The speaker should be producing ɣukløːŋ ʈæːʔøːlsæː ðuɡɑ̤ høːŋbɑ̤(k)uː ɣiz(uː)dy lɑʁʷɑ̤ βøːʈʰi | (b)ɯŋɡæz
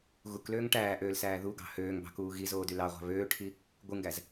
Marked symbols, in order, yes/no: yes, no, no

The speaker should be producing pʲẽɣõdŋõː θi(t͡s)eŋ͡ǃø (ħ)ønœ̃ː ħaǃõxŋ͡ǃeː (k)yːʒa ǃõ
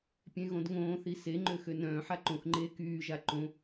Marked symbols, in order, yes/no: no, no, yes

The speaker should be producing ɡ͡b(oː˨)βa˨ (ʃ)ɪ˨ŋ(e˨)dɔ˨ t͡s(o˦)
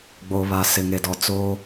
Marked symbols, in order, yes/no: yes, no, yes, yes

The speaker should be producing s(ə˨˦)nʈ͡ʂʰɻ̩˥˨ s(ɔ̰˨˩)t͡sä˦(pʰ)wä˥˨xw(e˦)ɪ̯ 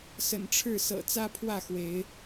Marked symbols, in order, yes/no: no, no, yes, no

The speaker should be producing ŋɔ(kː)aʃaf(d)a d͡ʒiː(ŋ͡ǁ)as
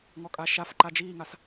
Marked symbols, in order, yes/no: no, no, no

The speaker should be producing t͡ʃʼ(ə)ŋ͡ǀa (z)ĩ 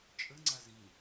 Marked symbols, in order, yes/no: yes, yes

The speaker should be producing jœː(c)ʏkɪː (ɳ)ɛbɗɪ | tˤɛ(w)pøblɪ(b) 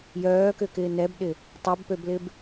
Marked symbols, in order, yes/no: no, no, no, yes

